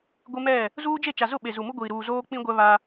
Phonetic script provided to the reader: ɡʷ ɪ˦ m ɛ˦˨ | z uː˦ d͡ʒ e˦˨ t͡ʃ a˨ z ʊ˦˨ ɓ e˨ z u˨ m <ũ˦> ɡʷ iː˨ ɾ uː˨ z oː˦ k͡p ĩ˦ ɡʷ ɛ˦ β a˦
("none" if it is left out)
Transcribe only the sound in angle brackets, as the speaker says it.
u˦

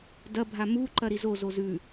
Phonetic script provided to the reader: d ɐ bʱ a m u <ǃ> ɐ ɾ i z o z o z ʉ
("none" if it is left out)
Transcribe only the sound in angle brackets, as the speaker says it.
ǃ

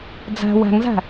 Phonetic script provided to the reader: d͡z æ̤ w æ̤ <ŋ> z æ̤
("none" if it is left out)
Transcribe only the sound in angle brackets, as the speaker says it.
ŋ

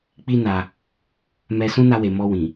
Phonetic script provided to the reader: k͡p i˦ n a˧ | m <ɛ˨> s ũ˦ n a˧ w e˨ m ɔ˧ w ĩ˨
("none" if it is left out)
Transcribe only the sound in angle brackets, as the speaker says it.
ɛ˧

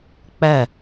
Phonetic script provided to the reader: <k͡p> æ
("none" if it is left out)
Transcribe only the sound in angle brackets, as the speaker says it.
k͡p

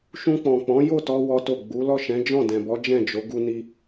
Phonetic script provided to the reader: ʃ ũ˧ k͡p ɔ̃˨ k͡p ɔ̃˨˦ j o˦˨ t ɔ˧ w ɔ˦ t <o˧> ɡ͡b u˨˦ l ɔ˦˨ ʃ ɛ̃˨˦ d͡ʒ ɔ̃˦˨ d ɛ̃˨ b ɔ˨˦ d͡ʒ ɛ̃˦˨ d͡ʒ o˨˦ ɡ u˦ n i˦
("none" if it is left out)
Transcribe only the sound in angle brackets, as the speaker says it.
o˦˨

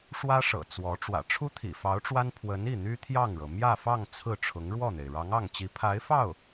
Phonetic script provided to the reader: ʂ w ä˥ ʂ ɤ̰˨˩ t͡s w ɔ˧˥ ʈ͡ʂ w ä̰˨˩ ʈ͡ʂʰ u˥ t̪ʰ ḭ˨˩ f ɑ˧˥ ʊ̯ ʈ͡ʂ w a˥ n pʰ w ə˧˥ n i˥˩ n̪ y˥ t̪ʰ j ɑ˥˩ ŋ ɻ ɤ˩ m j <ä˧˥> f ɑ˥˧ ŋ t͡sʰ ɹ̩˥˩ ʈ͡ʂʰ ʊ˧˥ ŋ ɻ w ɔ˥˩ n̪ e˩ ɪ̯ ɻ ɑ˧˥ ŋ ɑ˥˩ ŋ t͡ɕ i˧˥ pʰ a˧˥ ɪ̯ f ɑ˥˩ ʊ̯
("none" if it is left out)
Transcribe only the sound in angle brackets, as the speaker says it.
ä˥˧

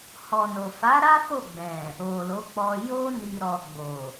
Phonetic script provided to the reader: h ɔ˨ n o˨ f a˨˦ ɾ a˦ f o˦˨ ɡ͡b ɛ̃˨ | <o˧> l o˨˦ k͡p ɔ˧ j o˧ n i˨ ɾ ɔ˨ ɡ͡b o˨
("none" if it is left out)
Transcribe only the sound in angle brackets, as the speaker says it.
o˨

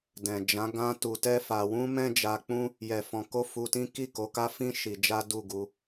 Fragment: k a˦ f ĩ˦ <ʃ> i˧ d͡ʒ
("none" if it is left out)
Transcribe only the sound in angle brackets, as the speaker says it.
ʃ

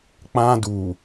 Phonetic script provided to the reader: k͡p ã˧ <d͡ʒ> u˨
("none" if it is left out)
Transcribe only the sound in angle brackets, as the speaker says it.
d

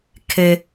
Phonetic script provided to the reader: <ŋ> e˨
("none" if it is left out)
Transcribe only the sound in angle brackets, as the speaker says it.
kʰ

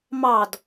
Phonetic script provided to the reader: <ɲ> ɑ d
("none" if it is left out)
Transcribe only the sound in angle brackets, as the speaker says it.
m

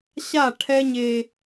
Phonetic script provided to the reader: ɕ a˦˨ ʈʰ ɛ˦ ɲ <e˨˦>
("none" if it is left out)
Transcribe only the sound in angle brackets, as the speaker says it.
e˦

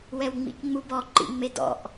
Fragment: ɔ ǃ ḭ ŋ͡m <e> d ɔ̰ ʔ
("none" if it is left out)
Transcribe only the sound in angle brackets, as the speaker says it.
e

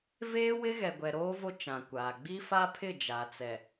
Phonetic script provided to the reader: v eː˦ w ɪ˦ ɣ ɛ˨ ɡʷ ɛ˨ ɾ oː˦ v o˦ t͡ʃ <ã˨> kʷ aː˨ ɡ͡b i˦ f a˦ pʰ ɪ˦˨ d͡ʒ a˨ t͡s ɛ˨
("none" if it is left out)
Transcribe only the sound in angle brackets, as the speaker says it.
ã˨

